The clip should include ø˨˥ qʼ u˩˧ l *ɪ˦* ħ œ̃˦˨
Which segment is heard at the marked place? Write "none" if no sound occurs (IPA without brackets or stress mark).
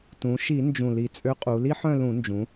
i˦